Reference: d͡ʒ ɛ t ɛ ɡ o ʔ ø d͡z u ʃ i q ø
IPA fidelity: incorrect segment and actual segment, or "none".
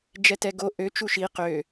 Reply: d͡z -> t͡ʃ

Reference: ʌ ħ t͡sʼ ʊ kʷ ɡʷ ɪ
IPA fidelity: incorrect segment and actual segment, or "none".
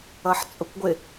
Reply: none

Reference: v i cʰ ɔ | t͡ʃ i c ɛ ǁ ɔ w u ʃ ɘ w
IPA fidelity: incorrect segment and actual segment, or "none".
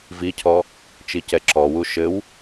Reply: none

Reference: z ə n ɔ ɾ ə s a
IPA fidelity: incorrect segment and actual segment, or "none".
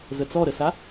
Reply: n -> t͡s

